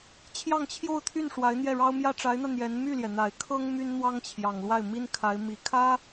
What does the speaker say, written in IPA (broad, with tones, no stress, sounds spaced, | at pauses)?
t͡ɕʰ j ɑ˥˧ ŋ t͡ɕʰ j o˥˧ ʊ̯ t̪ʰ y˥˩ n ʂ w a˧˥ ɪ̯ n̪ j ɛ˥˩ ɻ ɑ˥ ʊ̯ m j ä˥ ʈ͡ʂ a˧˥ ɪ̯ n̪ ä˧ n̪ j ɛ˧˥ n m y˥˩ l j ɛ˩ n̪ a˨˩ ɪ̯ kʰ ɤ˥ ŋ m y˥ n n̪ w ɑ˥ ŋ t͡ɕʰ j ɑ˨˩ ŋ l w a˥˩ ɪ̯ m i˥ n kʰ a˧˥ ɪ̯ m i˨˩ kʰ ä˥